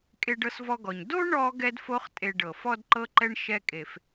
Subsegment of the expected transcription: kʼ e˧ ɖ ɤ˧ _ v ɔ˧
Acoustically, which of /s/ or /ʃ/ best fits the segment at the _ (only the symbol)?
s